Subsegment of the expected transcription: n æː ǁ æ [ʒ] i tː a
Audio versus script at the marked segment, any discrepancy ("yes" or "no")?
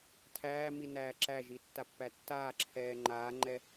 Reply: no